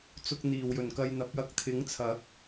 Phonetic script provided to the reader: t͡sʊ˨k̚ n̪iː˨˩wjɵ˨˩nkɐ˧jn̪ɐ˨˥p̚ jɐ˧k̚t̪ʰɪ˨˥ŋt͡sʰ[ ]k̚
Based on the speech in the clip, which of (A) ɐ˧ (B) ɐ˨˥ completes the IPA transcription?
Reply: B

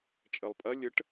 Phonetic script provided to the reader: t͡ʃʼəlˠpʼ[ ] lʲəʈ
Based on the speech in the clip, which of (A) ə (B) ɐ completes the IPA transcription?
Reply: B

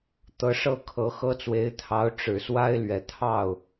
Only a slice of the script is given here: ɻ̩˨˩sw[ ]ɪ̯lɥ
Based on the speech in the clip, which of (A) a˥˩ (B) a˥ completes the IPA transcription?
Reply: B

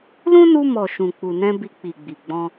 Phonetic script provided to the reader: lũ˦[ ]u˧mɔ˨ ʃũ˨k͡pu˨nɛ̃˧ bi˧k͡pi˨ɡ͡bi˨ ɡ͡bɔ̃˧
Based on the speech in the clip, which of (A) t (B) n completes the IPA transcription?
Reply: B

